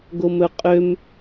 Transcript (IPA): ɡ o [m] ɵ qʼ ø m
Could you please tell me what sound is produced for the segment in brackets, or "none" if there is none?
m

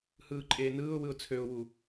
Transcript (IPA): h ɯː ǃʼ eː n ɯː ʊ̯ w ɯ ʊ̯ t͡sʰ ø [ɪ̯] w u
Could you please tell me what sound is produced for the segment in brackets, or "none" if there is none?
ʊ̯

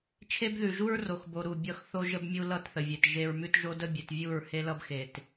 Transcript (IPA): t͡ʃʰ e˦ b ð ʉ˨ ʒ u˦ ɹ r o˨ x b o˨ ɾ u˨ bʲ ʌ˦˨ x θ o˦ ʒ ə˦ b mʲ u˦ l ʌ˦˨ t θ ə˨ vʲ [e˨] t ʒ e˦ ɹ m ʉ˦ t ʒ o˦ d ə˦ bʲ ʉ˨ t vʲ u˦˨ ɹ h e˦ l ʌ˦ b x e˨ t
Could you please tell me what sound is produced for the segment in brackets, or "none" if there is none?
e˨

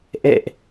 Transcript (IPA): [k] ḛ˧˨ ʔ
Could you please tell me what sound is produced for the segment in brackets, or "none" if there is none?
ʔ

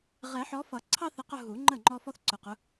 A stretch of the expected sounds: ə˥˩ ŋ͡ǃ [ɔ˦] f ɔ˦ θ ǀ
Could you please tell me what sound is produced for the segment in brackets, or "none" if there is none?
ɔ˦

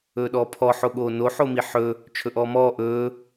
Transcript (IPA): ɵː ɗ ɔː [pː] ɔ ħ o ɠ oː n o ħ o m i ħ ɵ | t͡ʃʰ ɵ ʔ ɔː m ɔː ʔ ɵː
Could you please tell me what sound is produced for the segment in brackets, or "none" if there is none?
pʰ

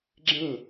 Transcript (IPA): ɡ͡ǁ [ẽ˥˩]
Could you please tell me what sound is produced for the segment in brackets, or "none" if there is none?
ẽ˥˩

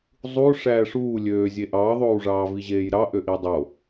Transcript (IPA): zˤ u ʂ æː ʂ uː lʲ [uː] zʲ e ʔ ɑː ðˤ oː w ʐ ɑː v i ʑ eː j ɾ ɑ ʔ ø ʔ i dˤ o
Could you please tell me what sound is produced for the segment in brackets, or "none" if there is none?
øː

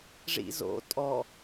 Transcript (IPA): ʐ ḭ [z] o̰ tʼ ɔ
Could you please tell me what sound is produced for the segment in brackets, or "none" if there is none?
z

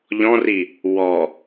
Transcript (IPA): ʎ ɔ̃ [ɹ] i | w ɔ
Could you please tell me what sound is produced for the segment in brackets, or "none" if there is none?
r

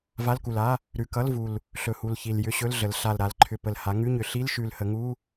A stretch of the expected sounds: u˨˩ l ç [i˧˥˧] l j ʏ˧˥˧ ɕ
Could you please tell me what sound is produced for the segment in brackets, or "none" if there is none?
i˨˩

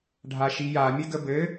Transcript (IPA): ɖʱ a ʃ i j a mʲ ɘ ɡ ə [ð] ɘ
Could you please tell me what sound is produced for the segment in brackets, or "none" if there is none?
b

